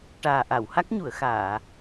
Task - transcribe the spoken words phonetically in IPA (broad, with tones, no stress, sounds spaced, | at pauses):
ʈ aː˨˩ ʔ a˨˩˨ w h a˦˥ k̚ ɲ u˨˩˨ ə̯ x aː˨˩˨